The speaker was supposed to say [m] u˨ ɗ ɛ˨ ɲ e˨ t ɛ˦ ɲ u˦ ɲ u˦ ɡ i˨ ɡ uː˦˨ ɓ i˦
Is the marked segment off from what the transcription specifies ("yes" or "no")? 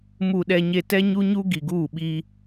no